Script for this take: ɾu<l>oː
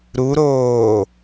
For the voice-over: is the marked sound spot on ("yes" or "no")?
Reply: no